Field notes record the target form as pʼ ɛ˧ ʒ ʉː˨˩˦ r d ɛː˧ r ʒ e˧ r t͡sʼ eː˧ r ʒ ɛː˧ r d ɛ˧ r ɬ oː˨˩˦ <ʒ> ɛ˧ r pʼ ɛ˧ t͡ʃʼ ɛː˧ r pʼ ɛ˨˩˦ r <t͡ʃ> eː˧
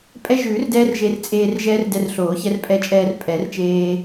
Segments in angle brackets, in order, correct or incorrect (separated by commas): incorrect, correct